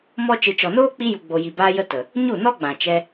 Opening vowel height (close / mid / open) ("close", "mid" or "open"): mid